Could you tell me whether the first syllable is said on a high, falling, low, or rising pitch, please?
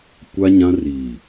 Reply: high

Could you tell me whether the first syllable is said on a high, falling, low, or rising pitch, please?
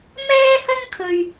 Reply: high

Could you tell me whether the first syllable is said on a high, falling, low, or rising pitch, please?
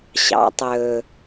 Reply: low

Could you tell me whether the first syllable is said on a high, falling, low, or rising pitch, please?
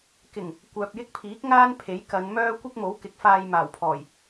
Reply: low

